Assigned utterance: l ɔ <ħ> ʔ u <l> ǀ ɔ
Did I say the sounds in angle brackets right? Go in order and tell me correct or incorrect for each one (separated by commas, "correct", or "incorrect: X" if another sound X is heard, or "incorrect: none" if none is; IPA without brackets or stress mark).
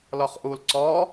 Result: incorrect: χ, correct